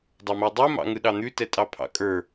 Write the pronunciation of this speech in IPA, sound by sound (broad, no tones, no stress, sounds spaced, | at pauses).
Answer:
dˤ ɑ m o dˤ u m ɑ̰ ŋ ɯ ɗ ɑ n̪ ʉ t ɛ tʼ ɑ pʰ ɑ̰ kʼ ə˞